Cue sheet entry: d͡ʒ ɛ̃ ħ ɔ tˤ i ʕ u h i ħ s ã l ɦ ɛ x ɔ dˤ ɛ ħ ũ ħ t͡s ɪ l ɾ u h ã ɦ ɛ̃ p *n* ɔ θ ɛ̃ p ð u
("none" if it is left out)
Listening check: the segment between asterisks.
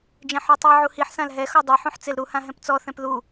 t͡s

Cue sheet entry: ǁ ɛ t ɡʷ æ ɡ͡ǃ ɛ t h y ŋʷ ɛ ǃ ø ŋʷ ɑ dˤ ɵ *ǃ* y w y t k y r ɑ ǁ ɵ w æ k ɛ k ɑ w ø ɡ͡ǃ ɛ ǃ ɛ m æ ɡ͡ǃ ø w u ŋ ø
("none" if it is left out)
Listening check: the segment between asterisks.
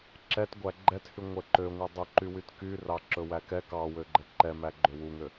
ǃ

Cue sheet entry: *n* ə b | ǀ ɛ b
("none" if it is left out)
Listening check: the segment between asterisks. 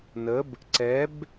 n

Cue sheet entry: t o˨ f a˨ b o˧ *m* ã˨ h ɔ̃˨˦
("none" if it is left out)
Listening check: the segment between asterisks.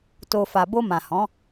m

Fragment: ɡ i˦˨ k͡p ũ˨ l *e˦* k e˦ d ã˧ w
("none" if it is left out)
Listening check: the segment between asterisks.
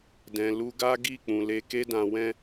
e˧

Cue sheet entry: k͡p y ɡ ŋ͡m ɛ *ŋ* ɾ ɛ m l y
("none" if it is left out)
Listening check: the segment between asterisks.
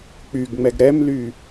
ɡ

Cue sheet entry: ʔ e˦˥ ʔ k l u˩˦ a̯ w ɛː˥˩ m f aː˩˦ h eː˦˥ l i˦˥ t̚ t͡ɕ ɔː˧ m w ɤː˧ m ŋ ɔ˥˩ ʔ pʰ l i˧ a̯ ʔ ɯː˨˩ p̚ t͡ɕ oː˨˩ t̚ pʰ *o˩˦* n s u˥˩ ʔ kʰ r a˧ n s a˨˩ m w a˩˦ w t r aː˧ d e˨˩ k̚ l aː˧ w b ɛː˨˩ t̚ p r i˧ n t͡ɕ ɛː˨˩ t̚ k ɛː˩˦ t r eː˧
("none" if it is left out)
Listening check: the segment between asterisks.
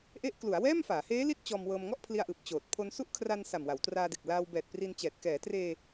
o˧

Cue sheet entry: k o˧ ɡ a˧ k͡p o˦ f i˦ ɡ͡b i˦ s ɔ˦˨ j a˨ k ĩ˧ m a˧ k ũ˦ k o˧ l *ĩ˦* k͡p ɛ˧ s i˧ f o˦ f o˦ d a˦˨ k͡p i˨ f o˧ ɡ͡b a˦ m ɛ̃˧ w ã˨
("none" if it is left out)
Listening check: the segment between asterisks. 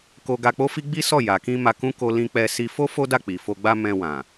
ĩ˧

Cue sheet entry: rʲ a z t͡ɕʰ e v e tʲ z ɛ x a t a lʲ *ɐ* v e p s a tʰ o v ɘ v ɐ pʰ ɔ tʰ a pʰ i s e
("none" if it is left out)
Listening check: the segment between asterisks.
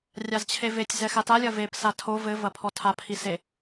ɐ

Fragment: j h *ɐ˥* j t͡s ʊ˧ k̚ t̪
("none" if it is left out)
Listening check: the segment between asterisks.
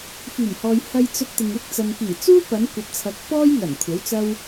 ɐ˧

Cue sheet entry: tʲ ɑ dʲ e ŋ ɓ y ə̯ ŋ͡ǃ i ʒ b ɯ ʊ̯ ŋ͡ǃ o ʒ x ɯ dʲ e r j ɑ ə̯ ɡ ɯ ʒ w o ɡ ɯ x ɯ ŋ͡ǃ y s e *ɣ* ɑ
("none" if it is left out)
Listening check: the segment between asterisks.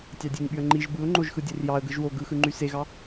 ɣ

